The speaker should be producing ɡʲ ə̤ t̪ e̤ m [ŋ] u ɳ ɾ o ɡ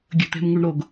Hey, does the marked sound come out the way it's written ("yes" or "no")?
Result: yes